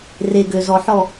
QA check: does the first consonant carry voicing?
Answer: yes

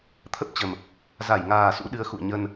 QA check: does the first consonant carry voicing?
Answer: no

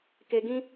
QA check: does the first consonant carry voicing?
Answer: no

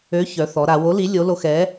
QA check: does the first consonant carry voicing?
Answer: no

